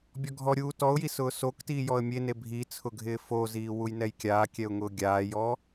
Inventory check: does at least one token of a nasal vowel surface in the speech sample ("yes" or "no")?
no